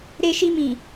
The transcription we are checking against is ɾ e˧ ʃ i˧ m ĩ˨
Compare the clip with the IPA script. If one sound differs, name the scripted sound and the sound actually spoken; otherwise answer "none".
none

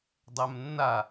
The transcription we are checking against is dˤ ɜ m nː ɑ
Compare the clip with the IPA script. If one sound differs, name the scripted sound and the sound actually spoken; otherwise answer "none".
ɑ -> a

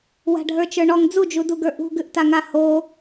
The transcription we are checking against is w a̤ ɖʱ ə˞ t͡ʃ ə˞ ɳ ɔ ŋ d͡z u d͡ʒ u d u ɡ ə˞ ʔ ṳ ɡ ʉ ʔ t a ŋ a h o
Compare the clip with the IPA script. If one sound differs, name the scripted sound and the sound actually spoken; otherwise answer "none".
none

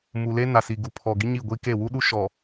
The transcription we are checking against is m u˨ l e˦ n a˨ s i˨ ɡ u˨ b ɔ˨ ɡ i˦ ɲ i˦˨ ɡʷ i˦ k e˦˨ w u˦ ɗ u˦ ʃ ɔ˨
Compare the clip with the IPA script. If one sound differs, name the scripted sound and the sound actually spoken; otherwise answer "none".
b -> pʰ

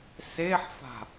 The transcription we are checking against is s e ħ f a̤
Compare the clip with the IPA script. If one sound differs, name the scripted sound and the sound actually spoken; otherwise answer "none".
none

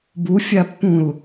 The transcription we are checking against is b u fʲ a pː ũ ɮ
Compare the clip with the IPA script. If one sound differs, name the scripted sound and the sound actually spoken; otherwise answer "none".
ɮ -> l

